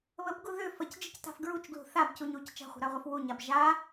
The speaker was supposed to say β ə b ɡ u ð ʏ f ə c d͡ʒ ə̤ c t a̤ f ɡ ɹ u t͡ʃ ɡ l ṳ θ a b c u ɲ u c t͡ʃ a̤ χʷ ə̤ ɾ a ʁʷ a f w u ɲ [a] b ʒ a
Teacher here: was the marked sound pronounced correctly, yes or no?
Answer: yes